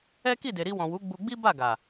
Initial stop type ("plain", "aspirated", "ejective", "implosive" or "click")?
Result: plain